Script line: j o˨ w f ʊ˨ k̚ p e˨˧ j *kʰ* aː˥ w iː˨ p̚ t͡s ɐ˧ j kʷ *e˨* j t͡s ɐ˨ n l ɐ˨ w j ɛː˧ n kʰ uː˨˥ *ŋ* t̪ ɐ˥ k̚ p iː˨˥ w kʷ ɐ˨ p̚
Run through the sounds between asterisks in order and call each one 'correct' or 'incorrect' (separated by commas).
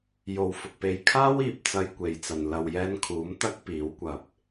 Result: correct, correct, incorrect